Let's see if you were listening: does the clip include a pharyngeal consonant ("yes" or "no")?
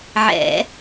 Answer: yes